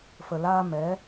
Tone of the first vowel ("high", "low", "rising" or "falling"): low